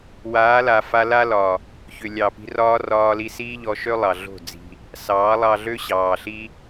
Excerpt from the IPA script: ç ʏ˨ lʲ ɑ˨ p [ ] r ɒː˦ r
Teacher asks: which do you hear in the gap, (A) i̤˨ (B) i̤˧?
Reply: B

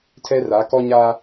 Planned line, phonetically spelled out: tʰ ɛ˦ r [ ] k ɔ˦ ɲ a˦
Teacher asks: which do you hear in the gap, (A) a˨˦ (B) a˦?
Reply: A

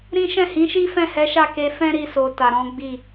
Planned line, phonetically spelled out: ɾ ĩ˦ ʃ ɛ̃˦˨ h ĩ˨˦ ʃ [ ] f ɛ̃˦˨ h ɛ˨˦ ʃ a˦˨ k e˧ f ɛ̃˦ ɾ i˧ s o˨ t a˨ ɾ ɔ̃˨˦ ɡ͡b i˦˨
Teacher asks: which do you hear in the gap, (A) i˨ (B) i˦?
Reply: B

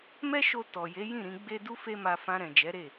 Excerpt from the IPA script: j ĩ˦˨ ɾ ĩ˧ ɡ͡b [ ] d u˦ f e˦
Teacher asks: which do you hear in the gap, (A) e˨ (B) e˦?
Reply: B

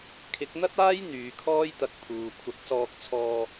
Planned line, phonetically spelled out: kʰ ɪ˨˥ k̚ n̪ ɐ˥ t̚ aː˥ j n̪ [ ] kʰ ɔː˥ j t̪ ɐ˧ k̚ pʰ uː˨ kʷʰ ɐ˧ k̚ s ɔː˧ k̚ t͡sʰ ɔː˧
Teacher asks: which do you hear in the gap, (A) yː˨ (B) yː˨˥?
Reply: A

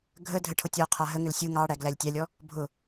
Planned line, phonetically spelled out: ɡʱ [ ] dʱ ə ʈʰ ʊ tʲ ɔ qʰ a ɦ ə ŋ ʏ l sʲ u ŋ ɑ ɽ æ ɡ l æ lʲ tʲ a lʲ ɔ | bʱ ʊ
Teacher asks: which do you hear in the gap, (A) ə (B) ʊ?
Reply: A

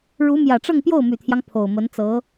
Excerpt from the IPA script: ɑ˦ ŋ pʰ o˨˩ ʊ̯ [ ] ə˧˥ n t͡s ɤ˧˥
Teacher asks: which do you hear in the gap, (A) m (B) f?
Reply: A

